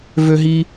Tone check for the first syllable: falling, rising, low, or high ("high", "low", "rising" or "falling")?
high